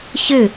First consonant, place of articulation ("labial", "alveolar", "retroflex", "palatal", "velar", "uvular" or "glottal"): palatal